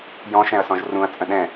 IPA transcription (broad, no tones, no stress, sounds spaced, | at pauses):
j ɔ̃ ʃ ɛ̃ ɐ̯ s ɔ̃ ʒ r ũ ɐ̯ t͡sʼ ə̃ ɗ ɛ̃